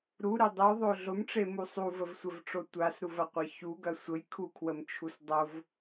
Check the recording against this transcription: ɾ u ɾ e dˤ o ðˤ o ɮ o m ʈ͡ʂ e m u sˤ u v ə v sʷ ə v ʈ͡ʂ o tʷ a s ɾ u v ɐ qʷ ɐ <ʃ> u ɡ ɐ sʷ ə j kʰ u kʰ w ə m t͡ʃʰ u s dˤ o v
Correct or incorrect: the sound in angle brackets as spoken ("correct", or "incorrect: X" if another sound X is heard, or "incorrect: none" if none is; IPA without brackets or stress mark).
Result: incorrect: ç